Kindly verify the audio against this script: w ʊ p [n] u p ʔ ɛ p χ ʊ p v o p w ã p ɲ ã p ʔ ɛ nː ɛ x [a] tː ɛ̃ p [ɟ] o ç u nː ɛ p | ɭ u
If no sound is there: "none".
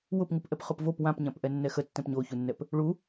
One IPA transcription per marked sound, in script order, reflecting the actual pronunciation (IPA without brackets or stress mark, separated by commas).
ŋ, ə, ɲ